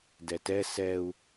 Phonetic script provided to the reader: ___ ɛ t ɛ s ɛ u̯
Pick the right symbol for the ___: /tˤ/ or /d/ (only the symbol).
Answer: d